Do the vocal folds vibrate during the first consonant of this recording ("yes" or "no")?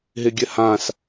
yes